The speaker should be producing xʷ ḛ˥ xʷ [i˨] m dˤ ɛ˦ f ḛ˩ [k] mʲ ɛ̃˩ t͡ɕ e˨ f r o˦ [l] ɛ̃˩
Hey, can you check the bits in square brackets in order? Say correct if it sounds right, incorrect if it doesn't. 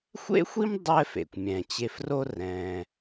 incorrect: i˥, incorrect: kʷ, incorrect: r

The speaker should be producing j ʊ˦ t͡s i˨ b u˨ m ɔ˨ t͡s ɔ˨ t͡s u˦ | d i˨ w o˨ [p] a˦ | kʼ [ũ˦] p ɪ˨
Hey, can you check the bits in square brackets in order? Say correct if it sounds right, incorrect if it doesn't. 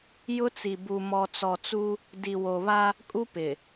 incorrect: β, incorrect: u˦

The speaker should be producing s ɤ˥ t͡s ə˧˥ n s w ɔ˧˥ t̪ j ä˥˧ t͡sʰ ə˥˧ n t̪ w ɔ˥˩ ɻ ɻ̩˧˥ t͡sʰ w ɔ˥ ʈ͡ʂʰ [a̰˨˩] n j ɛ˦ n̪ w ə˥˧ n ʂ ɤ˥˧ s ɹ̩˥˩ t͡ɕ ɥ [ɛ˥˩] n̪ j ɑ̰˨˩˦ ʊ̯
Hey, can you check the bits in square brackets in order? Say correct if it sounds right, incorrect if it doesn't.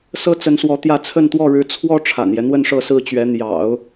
correct, incorrect: ɛ˧˥

